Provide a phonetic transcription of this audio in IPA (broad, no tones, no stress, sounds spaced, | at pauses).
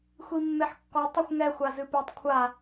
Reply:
xʷ i mː e ħ kː ɔ tˤ ɨ xʷ ŋ ɛ xʷ a z ɨ p e tˤ kʷʰ a